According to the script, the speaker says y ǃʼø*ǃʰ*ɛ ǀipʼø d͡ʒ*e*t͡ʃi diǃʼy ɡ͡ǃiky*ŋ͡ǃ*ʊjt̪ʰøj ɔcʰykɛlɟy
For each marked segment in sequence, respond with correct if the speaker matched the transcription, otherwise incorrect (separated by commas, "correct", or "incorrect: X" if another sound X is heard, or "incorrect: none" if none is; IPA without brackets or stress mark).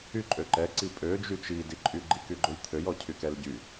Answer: incorrect: ǃ, incorrect: y, incorrect: ɡ͡ǃ